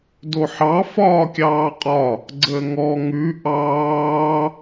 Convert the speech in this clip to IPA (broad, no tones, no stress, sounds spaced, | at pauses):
d o ħ ɑ f ɒː kʲ ɑː qʼ ɒ | ɡ͡ǀ əː ŋ ɔ ŋ ʉ ʔ ɑː